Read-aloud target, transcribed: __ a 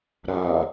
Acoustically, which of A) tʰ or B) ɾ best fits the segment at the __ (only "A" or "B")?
B